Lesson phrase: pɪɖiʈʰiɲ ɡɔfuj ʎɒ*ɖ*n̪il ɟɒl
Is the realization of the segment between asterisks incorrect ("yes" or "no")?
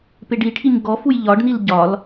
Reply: no